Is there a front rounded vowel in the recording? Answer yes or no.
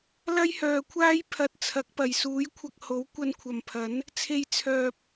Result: yes